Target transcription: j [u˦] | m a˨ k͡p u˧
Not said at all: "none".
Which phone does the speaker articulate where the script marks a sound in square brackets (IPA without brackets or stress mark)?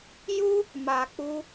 u˦